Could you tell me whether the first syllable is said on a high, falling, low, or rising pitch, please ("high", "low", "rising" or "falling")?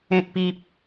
low